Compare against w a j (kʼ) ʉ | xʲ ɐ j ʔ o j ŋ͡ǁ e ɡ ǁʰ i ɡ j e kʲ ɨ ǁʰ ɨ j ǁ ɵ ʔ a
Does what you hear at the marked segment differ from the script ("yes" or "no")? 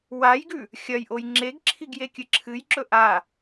yes